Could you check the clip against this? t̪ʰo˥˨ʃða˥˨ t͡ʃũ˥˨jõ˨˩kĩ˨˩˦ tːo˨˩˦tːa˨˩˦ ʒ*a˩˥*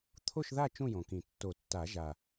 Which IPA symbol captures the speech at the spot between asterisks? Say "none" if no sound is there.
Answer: a˨˩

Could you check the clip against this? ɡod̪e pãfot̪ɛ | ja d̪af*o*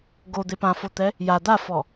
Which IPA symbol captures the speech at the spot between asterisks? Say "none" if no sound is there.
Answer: ɔ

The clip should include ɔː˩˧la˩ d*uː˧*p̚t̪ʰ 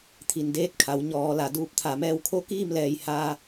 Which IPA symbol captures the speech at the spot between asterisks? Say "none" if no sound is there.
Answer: uː˧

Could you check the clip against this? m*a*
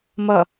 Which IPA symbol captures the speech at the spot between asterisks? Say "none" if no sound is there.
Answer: ʌ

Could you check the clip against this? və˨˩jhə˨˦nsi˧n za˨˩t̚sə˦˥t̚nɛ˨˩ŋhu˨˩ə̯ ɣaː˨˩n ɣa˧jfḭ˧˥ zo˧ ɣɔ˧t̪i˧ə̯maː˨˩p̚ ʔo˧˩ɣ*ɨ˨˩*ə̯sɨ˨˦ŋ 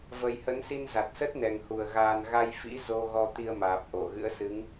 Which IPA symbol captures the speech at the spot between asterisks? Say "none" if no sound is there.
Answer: ɨ̰˧˥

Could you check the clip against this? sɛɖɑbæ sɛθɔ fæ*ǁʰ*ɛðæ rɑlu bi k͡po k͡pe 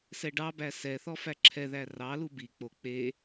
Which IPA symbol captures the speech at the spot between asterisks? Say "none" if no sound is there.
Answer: ǁʰ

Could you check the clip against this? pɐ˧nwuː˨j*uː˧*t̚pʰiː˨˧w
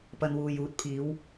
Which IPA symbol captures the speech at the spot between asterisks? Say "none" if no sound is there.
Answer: uː˨˥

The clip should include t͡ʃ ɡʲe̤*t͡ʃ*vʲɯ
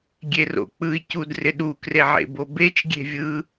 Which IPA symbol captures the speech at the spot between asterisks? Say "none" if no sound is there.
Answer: none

